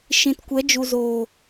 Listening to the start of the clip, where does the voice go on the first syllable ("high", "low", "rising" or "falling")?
low